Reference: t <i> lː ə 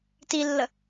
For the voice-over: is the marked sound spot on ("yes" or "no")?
yes